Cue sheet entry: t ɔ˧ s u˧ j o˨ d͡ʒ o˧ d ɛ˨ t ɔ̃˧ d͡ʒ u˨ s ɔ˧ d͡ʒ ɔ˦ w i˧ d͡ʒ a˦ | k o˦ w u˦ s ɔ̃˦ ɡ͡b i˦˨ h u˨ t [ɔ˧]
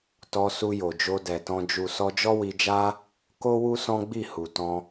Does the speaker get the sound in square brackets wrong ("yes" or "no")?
yes